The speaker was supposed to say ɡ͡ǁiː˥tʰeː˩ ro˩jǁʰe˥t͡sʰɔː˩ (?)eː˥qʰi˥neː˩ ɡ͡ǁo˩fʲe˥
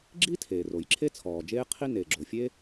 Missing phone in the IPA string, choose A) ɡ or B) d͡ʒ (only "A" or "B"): B